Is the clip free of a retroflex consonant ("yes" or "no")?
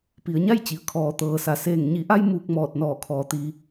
yes